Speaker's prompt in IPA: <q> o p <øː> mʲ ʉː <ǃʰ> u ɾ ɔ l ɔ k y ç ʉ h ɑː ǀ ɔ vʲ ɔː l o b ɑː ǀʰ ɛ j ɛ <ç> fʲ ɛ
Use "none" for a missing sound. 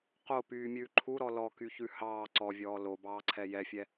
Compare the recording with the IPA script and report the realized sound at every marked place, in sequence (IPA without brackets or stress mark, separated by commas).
q, yː, ǃʰ, none